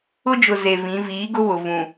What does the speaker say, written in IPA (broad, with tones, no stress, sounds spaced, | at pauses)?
ʊ˦ d͡ʒ ʊ˨ z e˨ v ĩ˨˦ v iː˨˦ ɡ ʊ˦ β ʊ˨ v ũ˨